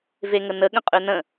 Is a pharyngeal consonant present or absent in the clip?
absent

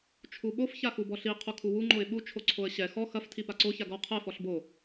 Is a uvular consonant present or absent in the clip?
present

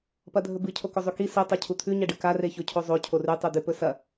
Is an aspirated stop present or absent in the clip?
present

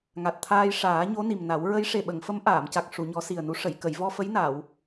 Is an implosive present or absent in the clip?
present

